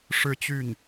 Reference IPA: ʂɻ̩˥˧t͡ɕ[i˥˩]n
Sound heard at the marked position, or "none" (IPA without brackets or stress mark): y˥˩